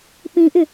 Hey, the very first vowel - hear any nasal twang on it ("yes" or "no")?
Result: yes